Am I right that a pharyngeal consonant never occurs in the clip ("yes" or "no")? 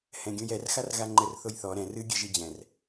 yes